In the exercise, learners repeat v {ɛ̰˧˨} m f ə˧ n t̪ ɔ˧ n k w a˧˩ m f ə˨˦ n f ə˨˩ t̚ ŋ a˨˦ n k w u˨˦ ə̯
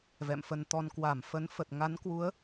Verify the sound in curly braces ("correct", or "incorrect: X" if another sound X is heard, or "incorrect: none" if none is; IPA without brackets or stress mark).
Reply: correct